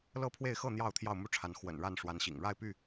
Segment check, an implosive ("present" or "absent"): absent